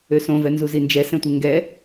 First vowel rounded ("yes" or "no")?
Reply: yes